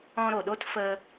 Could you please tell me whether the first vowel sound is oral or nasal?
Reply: nasal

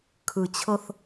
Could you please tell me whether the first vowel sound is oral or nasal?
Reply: oral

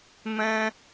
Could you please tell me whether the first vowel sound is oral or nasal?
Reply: nasal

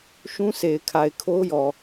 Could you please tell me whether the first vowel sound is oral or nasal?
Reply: nasal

